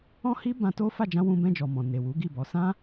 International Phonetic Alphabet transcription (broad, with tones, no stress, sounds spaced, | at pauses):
ɔ̃˦ h i˦ b ã˧ t o˦ f a˦˨ d͡ʒ ã˧ w ũ˧ b ɛ̃˧ d͡ʒ ɔ˨ m ɔ̃˨ n e˨ w u˨˦ ɡ i˦˨ b ɔ˨˦ s ã˦